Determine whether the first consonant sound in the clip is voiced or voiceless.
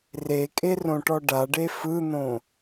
voiced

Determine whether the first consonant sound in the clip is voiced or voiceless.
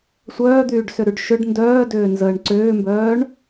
voiceless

